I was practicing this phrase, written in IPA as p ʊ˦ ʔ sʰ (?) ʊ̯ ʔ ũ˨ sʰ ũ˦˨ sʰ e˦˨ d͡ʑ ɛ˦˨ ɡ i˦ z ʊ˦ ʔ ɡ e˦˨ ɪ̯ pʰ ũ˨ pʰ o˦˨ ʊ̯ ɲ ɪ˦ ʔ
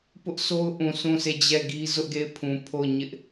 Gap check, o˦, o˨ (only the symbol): o˦